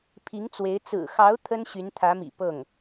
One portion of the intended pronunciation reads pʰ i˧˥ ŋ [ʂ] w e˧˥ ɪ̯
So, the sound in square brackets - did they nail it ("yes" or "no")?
no